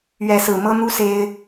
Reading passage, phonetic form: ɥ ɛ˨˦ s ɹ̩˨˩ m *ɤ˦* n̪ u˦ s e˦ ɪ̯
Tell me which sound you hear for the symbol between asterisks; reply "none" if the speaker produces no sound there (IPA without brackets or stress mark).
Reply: ɤ˦